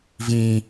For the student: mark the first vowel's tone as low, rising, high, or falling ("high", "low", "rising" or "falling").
high